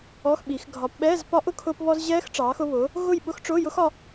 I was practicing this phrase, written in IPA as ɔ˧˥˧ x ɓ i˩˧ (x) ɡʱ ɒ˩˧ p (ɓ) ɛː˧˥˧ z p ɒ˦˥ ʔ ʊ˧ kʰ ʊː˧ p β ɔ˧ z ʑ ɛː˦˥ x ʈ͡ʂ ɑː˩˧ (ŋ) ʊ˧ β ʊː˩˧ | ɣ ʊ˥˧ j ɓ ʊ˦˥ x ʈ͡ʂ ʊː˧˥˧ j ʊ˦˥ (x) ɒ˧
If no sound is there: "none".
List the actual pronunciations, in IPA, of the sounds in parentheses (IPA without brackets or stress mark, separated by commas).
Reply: x, ɓ, x, x